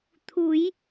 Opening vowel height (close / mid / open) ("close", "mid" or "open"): close